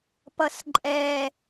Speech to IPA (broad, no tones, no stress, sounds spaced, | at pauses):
p ʌ s ǃʼ ɛ